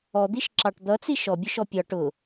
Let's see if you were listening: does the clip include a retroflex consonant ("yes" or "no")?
yes